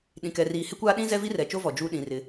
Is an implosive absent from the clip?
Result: no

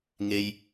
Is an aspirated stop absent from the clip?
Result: yes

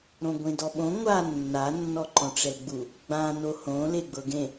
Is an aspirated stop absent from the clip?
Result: yes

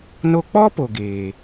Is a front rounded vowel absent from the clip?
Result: yes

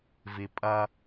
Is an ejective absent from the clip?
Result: no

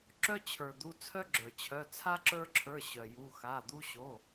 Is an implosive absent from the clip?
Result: yes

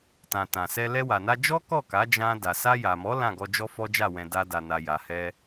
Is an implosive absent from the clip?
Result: yes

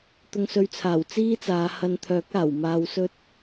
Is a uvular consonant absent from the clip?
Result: yes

